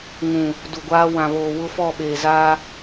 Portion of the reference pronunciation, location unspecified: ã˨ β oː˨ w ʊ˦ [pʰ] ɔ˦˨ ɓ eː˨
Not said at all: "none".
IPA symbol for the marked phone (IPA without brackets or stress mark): f